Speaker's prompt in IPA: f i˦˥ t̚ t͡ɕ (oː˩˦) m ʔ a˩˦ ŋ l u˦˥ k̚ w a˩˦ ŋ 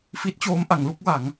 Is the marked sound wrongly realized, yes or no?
yes